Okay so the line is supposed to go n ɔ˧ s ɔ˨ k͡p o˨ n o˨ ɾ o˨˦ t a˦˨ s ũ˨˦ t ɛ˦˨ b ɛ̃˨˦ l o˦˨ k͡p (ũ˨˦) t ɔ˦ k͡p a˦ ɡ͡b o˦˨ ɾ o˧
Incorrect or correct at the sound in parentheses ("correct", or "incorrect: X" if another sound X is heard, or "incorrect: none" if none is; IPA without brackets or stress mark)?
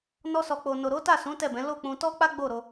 incorrect: ũ˧